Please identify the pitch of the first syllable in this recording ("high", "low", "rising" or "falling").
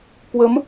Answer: rising